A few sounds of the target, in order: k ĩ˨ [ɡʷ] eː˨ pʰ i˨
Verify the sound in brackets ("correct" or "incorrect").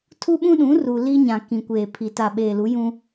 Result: incorrect